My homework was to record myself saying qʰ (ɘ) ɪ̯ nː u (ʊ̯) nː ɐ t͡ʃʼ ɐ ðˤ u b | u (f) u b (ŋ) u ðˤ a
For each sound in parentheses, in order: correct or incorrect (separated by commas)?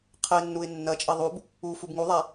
correct, incorrect, correct, correct